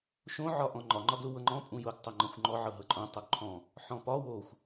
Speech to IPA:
ʃ õ ʕ ɒ ʔ ɔ̃ ŋ͡ǃ ɒ ŋ͡ǃ ɒ ɡ l u w ɤ ŋ͡ǃ ɔ̃ pʼ ũ j ʊ ɡ tˤ o ŋ͡ǃ ɔ̃ xʷ ŋ͡ǃ ɔ ʕ ɤ ɦ ɤ ǃʼ õ tˤ o ɡ ǃʰ ɔ̃ | ħ ɔ̃ p ɒ w o xʷ

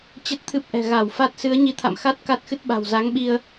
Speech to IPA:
t͡ɕ ə˦˥ t̚ t̪ʰ ɨ˦˥ p̚ ʔ ɛ̤˨˩ ɣ a˧˩ w f a˦˥ t̚ s ɨ˨˦ ə̯ ɲ i˨˦ t̪ʰ a̰˧˨ m x a˦˥ t̚ k a˦˥ t̚ x ɨ˦˥ t̚ ɓ a̤˨˩ w z a˨˦ ŋ ɓ i˧ ə̯

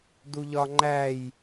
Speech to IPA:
d u ʎ ɒ ŋ͡ǃ æ j

